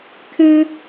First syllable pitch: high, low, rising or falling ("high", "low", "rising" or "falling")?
high